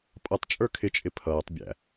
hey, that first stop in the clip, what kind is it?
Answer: ejective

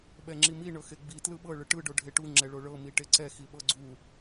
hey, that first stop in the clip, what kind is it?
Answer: implosive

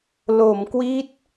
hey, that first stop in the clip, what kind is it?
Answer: plain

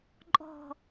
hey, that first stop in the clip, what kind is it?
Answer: click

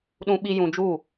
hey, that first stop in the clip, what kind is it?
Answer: implosive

